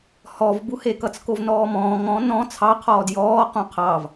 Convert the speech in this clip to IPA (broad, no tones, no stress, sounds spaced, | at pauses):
h ɔ v b u h e k ʌ t͡s k o v n ɔː m ɔ̃ː ŋ ɔ̃ n ɔ̃ t͡sʰ ɑ qʰ ɔː d j ɔː q ũ qʰ ɑ v